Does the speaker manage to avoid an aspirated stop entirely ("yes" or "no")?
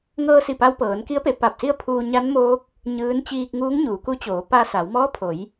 no